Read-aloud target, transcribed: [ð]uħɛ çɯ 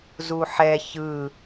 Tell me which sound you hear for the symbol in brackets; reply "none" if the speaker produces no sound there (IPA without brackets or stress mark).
z